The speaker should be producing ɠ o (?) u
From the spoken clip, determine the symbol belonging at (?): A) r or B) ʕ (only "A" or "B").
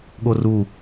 A